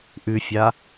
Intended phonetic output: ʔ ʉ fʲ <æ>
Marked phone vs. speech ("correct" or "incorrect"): incorrect